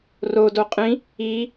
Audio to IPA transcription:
r o d o qʼ ĩ | i

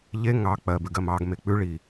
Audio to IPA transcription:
ʎ e ŋ ɑ k͡p ɜ b ʉ ɡ ɜ m ɑ ɡ m e k͡p ʉ ɭ i

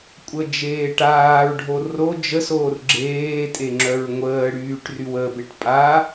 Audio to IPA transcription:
kʷʼ ə d͡ʒ eː ʈ aː ɹ ɖʱ o r o d͡ʒ ə s oː r ɡ͡ǁ eː tʼ e ŋ͡ǁ œ ɹ ŋʷ əː ɽ yː ʈ r y w ə b e ʈ pʼ a

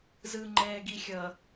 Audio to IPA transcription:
z ɯ ŋ͡ǃ ɛː ɡ i xʲ ʌ

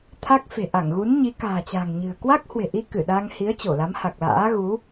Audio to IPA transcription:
t̪ʰ a˦˥ k̚ f e̤˨˩ ʔ a˧˩ ŋ ɣ u˨˦ n ɲ i˨˦ k a̤ː˨˩ t͡ɕ a̤˨˩ ŋ ɲ ɨ̤˨˩ ə̯ k w a˦˥ k̚ h w e̤˨˩ ʔ i˧ k ɨ˧˩ ɗ a˧ ŋ h i˨˦ ə̯ t͡ɕ o˧˩ l a˨˦ m h a˨˩ k̚ l a̰ː˧˥ ɣ u˨˦

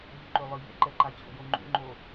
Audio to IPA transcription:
ʎ u ǃ ø lˠ ɨ ʎ ɛ̰ ǃ ɛ ǃ a t͡ɕ o̰ j o ŋ͡ǃ ṵ ŋ͡ǃ o

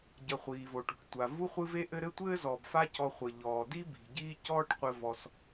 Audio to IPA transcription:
ɟ ɐ˨ χʷ iː˩ v o˩ ʈ ṳ˩ ʈ tʷ a˩ v u˥ χʷ ɨ˦ v e˥ ʔ ɘ˦ ɾ ɘ˥ tʷ ɘː˥ z ɔː˩ b f a˦ c ɔ˨ χʷ ɘ˩ ʎ ɔː˩ d i˥ b i̤˩ ɟ iː˦ c ɔː˦ ʈ qʷ ɘ˨ v ɔ˩ s

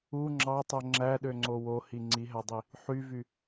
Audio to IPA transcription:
u ŋ͡ǁ ɑ tˤ o ŋ͡ǁ æ ɗ ø ŋ͡ǀ o w o h i ŋ͡ǀ i ɦ æ dˤ i | ħ y v y

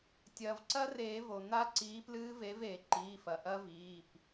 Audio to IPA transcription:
tʲ ɐː˩ v ǀ ɐ˦˥ r eː˨˩˦ v o˩ n̪ a˦˥ ǀ iː˨˥ p l ɨː˦˥ v e˨˥ v eː˩ ǃ iː˩˧˩ f ɐ˩ ʔ ɐ˦˥ v iː˩˧˩ p

